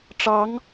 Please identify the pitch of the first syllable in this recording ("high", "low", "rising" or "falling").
rising